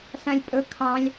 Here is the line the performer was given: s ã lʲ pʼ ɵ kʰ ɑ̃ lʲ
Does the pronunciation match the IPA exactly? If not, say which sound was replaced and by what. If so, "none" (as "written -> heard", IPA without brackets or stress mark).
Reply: none